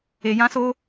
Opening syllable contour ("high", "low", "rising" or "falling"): low